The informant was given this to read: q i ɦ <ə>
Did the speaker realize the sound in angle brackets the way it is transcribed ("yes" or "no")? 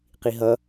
no